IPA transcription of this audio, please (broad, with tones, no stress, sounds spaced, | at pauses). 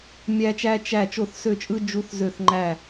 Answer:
mʲ æ˥ t͡ʃ æ˥ t͡ʃ æ˥˩ t͡ʃ o˥˩ θ s ø˥˩ t͡ʃʼ ɯ˥ d͡ʒ u˥ θ z ø˥˩ θ ŋ͡ǃ æ˥˩